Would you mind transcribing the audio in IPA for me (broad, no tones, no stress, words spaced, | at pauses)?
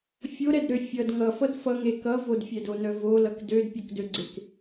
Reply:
fʲoɾɛdɾø fʲʌd ŋʌfʌd fʌŋe kʌ vodfʲɛdonœ volʌk dødpʲokdøɡ͡ǀek